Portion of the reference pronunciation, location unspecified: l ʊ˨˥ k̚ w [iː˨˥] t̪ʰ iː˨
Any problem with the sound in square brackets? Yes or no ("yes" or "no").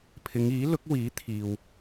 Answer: no